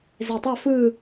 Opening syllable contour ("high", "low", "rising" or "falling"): low